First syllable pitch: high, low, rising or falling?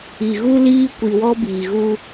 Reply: low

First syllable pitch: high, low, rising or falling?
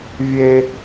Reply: high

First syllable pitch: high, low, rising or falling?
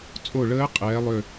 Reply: falling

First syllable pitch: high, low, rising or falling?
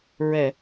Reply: low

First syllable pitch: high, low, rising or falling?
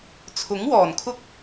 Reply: rising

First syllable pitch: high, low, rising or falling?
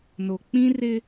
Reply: low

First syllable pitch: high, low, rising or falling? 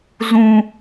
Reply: high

